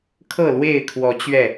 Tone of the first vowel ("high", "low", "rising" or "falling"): falling